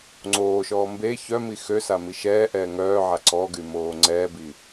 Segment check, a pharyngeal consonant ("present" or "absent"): present